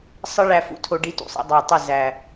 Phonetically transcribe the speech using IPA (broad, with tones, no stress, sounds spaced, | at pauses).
sˤ ə˦ ɭ æ˧ f ṵ˧ tʰ o˧ ɖ i˧ t ṵ˨ sˤ ɛ̰˧ dˤ æ˨ tˤ ə˦˨ z æ˨